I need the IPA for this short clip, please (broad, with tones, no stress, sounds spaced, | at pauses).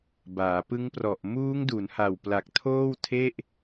b aː˩˦ p ɯ˦˥ ŋ p r ɔ˨˩ ʔ m uː˦˥ ŋ d u˩˦ n h a˨˩ w p l a˨˩ k̚ tʰ oː˥˩ w tʰ e˥˩ ʔ